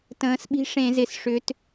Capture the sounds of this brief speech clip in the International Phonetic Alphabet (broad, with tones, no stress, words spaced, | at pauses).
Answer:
tə̃ː˩˧sɓi̤˨˥ ʂẽ˧˩˧zɪ˨˩sʂʏ˩˧t